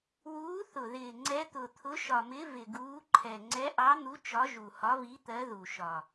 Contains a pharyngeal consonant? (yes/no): no